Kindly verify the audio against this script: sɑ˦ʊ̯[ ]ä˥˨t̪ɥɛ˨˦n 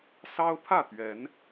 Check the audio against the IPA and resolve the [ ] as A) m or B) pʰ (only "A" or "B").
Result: B